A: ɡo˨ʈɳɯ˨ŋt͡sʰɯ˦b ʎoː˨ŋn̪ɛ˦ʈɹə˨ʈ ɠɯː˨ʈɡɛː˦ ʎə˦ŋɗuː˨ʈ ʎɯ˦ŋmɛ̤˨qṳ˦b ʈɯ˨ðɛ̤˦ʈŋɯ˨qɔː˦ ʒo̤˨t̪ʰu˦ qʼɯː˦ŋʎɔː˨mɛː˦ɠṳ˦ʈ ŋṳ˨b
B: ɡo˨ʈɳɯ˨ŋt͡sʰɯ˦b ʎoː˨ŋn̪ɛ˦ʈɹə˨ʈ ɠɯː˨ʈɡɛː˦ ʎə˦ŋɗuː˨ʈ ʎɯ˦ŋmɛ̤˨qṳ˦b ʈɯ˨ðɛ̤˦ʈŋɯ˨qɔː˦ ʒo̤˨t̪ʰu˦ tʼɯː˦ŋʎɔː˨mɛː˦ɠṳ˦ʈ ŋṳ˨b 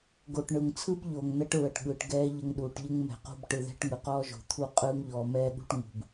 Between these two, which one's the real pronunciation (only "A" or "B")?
A